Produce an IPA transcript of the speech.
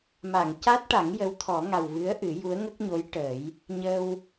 m a˨˩˨ ŋ c a˦˥ t̚ ʈ a˨˩˦ ŋ j ə˧˥ w t̪ʰ ɔ˨˩˦ ŋ a˨˩ w v ɨ˧˥ ə̯ ʔ ɨ˨˩˦ j u˧˥ ə̯ ŋ ə˦˥ k̚ ɲ o˧˥ j ʈ ə˨˩˦ j | ɲ ə˧ w

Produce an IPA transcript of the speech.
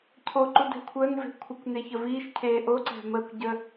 cʰ o ǃ u d ɛ̤ kʷʰ əː n v e̤ kʷʰ ɪ kʷ n e ç ə v iː ʃ cʰ eː ʔ o ǀ ɛ̤ m əː kʷ ɟ ə

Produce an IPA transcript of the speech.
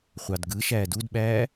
χʷ ɑ d ɡ ɯ ʃ æː d u d ɓ æː

